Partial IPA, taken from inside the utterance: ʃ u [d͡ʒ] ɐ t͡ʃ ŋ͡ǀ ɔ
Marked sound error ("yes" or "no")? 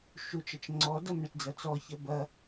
yes